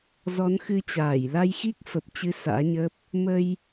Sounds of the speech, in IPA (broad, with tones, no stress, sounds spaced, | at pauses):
z ɔ˨˦ n x ɨ˧ t͡ɕ aː˧˩ j l a˧ j x i˦˥ k̚ f ə˨˩ p̚ t͡ɕ ɨ˨˦ s a̰ː˧˥ ɲ əː˦˥ p̚ | m ə˧ j